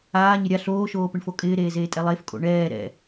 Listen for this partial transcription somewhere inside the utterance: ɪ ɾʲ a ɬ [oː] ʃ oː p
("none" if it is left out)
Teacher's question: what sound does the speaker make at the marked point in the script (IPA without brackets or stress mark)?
oː